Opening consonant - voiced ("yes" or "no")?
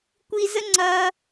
no